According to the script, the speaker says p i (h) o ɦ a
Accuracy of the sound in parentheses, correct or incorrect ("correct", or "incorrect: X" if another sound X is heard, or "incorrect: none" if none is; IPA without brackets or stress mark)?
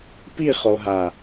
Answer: incorrect: χ